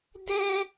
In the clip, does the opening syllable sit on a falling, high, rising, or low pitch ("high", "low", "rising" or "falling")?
high